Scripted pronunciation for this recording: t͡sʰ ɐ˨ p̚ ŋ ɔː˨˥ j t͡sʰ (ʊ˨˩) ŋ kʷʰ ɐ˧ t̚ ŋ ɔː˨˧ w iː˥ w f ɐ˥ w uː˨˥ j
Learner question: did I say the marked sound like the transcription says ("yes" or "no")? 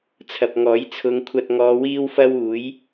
no